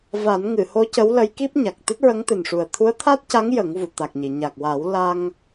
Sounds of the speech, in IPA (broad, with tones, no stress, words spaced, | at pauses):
va˨˩˦n ŋɨ˨˩˨ho˧˥ cə˧˥wlə˧˥jki˦˥p̚ ɲa˨˩k̚ t̪ɨ˦˥t̚ɹə˧˥ŋt̪ɨ˨˩nʂu˨˩ə̯ t̪ʰu˧˥ə̯t̪ʰa˦˥t̚ca˧˥ŋ jə˨˩˦ŋvu˨˩˨t̪a˨˩k̚ɲi˨˩˨ ɲa˨˩k̚wa˨˩˦w la˧ŋ